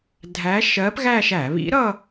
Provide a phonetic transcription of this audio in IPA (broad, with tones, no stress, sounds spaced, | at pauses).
dʱ æ˧˥ ʃ ɜ˧˥ p ɣ æ˥˧ ʃ æ˧˩˧ β ḭ˧˥ ɾ ʌ˥˧